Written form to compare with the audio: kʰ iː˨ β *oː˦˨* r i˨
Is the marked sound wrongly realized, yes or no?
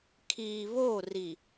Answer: no